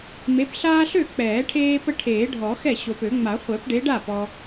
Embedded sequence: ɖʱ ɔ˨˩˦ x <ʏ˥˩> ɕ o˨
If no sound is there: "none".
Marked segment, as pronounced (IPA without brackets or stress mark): ɛ˥˩